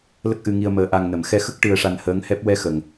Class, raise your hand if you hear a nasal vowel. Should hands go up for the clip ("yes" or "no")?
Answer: no